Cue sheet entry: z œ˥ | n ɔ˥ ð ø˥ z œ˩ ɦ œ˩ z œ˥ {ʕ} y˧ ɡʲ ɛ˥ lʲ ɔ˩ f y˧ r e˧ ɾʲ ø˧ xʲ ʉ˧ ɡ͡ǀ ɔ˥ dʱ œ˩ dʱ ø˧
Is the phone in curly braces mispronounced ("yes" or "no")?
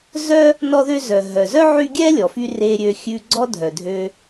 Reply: no